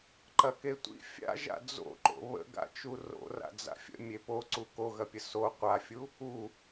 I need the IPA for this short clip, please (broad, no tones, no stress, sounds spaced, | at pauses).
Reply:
ǃ ɐ k e tʷ ḭ fʲ a̰ ʒ a̰ d͡z o̰ ǃ o̰ β ə̰ ɡ a̰ t͡ʃ u r o̰ r a̰ d͡z a̰ fʲ ə̰ mʲ e p o ǀ u k o ɣ ɐ pʲ ə s o qʷ a fʲ u | u